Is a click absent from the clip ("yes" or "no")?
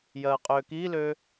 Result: yes